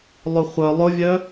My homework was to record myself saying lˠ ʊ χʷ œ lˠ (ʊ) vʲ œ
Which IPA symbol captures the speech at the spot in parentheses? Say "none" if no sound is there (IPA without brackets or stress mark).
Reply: ʊ